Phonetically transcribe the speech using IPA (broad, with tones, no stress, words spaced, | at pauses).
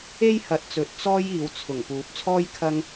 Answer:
e˥jhɐ˨˥t̚t͡sɵ˨t̚ t͡sɔː˥jiː˨˧w t͡sʰʊ˨˩ŋ puː˨˥p̚t͡sʰɔː˥j kʰɐ˥ŋ